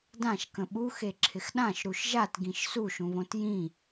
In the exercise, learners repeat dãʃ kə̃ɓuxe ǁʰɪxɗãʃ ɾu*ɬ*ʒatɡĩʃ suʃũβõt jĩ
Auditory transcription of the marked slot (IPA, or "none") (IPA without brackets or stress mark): ʃ